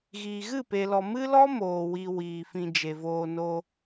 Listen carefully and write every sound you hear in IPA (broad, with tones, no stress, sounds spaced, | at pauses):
ɣ iː˨ ɣ ɨ˦˨ p e˨ l ɔ˨ m ɨ˦ l ɔ˦ m oː˨ w i˧ w iː˨ f ĩ˧ d͡ʒ e˨ v oː˧ n o˧